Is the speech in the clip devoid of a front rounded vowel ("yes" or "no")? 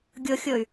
no